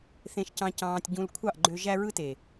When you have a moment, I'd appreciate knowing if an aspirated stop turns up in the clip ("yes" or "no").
yes